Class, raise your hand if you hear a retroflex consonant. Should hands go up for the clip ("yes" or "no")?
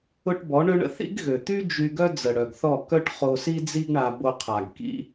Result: yes